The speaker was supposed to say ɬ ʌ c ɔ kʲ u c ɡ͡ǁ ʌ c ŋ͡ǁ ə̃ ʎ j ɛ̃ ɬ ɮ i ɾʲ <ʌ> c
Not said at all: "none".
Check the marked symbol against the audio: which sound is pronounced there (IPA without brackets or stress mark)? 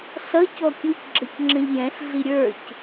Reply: ə˞